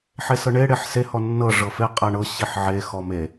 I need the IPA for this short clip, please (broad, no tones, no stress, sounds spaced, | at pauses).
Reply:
ħ e s ɤ ɳ e ɽ e ħ s e h ɔ nː ɤ ʐ ɤ f e qʼ æ ɳ ɤ ɕ i ħ ʕ e x ɔ m e